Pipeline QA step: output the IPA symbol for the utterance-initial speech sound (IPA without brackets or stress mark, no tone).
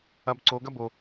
ɐ